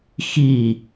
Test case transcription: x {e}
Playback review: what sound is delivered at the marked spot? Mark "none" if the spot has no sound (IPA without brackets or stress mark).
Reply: i